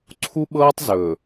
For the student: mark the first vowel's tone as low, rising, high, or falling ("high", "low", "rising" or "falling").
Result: high